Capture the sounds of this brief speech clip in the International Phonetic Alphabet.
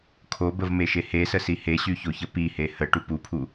kʰ o b ə v m e ʃ e h e s ə s i h e ɕ y ç o ç ə p i h e h ə ʈ u p u pʰ u

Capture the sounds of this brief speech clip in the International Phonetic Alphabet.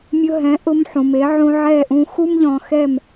mʲ ʊ˧ ɦ ɛ̃˩˥ ʔ ʊ˧ m ħ ũ˩ m e˩˥ ʕ ũ˧ ʕ ɛ˥˩ ʔ ũ˧ x u˥ m ʎ ɔ̃˧ x ɛ˥˩ m

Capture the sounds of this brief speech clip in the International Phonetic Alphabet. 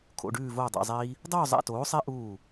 kʰ o̰˧˥˧ ɖ ʉː˥˧ v oː˥˧ dˤ a̰˧˥˧ zˤ iː˦˥ | dˤ oː˥˧ zˤ a̰˧˥˧ t oː˨˥ sˤ e˦˥ ʔ uː˥˩

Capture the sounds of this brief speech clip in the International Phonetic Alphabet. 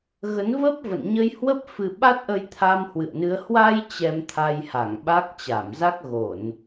ɣ ə˨˦ n v ə˦˥ p̚ v ə̰˧˨ n ɲ ə˧ j h w ə˦˥ p̚ f ɨ˧ ɓ a˦˥ t̚ ʔ ə˧ j t̪ʰ a˧ m h w ɨ̰˧˨ ə̯ n ɨ˨˦ ə̯ h w a˧ j t͡ɕ ɛ˧ m t̪ʰ a˧ j h a˧˩ ŋ ɓ a˦˥ k̚ t͡ɕ a˧˩ m z a˦˥ k̚ ɣ o˧˩˨ n

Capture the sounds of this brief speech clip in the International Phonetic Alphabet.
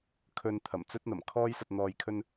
kʰ ɵ˨ n t̪ʰ ɐ˨˩ m t͡s ɵ˥ t̚ n̪ ɐ˨˩ m kʰ ɔː˥ j s ɐ˧ t̚ n̪ ɔː˧ j kʰ ɵ˥ n

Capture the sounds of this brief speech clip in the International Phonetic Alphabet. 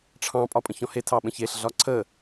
ʈ͡ʂʰ ɑ̃ pʼ ɒ pʼ ə̃ ç ɔ̃ h e tʰ ɑ ɓ ə̃ ç e ɬ ɮ ɒ ǀʰ ə

